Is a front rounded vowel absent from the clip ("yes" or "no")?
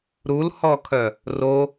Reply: no